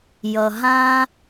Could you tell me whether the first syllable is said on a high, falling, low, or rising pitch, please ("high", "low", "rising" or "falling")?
low